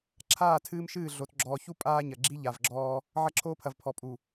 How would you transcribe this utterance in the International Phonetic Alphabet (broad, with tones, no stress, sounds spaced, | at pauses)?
ǁʰ aː˦˨ tʰ ɨː˦ m ʃ ɨː˦˨ ɮ o˨ t ɡ͡ǁ ɔː˨ ç u˦ pʼ aː˦ ɲ ɐ˨ ɡ͡ǁ i˦ ʎ a˨ v ɡ͡ǁ ɔː˦ | ʕ ɐ˦ ǁʰ oː˦ pʰ ɐ˨ v pʰ ɔ˨ pʼ u˨